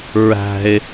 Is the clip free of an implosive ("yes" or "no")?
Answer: yes